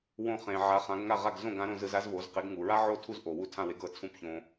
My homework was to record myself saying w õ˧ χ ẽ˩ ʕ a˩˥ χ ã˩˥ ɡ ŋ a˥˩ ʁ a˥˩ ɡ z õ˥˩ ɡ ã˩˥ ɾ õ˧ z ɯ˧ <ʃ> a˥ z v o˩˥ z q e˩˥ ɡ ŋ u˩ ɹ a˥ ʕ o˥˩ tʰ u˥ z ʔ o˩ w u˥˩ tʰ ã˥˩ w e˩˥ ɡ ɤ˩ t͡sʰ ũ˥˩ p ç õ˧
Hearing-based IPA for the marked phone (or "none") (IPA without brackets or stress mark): z